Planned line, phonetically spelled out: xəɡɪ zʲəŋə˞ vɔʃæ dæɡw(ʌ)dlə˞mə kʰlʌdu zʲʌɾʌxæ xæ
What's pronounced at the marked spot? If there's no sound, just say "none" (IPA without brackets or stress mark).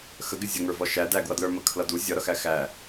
ʌ